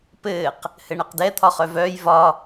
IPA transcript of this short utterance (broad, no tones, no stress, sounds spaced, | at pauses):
p ɘː q | h ɘ ɳ ɛ q d ɛ t̪ʰ ɒ χ œ v œː j v ɒ